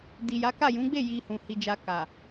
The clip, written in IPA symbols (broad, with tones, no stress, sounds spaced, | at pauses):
d i˨ j a˨˦ k a˦˨ j ũ˨˦ ɡ͡b e˦˨ j i˧ h ũ˨ h i˧ d͡ʒ a˧ k a˨